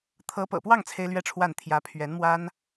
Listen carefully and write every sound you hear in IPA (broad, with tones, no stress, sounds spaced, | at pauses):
t̪ʰ ɤ˧˥ p ɤ̰˨˩ p w ɑ˥˩ ŋ t͡sʰ e˥ ɪ̯ l ɥ ɛ˥˧ ʈ͡ʂʰ w a˥˩ n t̪ʰ j ä˧˥ pʰ ɥ ɛ˧˥ n m w a˥ n